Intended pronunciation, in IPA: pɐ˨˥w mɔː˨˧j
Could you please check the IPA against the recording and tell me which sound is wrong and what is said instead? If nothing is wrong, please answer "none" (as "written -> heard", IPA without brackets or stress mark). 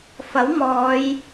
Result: p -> f